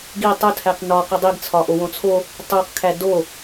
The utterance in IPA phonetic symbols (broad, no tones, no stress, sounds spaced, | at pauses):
ɡ i tˤ o tʰ æ q n ɒ q o dˤ i ɡ t͡sʰ ɒ ʔ o w õ t͡sʰ o | tˤ u q kʰ æ d o